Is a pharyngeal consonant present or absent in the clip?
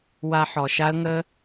present